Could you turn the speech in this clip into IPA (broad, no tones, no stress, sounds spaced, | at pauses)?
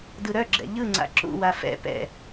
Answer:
d ɯ ɾ œ ɡ͡ǁ ɛ̰ ʎ ɯ ŋ͡ǀ a̰ ǁ ṵ w a f ɛ̰ p ɛ̰